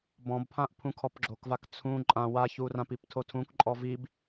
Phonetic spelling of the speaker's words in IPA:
b ɔ̃ b pʰ ã ʔ pʰ ũ kʰ ɔ p ɡ͡ǁ o k v a k t͡sʰ ũ ǃʼ ã w a ç u r ã p i p tʰ o tʰ ũ k ǃʼ ɔ v i b

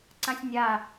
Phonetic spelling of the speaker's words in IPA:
ǀ ã sʲ nʲ a

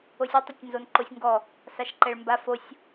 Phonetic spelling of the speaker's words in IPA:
o sʲ ə˞ tˤ ɘ tʲ n z o n ǃ o sʲ ŋ ɡ ɔ | s a ʃ ǃ ɛ ɭ m b a f o sʲ

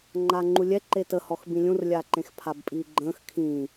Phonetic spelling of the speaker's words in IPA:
ŋ͡ǃ aː ŋ͡ǃ u lʲ ɛ ǃ e t ə h ɔ x b ĩ lʲ ũ r lʲ aː ǃ ẽ x pʰ a b pʼ iː ɡ͡ǃ ə̃ː x kʰ ĩː

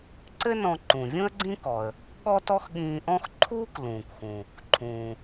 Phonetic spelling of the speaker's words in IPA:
ǀ ɘ˥ n ɔ̃˧ ǃ ũ˩ vʲ ũ˥ ə̯ ɡ͡ǀ ĩ˥ k ɔ˩ ə̯ | ɠ ɔ˥ t ɔ˥ x ɠ ĩː˧ ʔ ɔ̃˥ x ǃʰ uː˥ k l ũː˩ k x ũ˩ | ǃʰ ũː˩

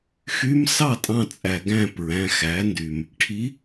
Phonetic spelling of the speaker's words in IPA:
x y˧˥ m s ɑ˥˩ tʼ ɑ̃˧ t͡sʼ æ˩ ɡ æ̃˥˩ p ɹ æ̃˩˧˩ x æ˩˥ n d y˩ m | ʈʰ i˧˥

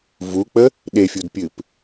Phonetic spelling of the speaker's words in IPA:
v u k͡p ə | ɗ e fʲ u d pʲ ɨ p

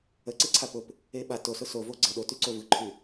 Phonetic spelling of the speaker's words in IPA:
ə ǀ e ǀʰ a p ʊ p | e ɓ a t o s ʊ s o v o ɡ͡ǀ ə ɗ o t y ǀ o v ɯ ǃʰ y

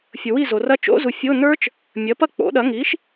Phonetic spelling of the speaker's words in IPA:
fʲ ʊ˨ w i˥˨ z o˨ r ɐ˦˥ t͡ʃ o̰˦˥ z u˨ fʲ o˧˥˧ n ə˞˦˥ t͡ʃ | mʲ ɐ˩˥ p ɐ˥˨ k͡p o̰˩˥ ɗ ɐ˩˥ ŋ i˩˥ ʃ

